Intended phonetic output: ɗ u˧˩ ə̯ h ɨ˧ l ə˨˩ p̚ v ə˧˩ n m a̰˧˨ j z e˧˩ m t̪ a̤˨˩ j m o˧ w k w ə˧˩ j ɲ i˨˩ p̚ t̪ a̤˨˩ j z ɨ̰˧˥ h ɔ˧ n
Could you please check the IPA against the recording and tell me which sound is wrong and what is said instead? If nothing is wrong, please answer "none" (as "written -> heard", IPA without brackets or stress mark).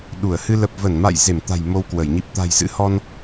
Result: none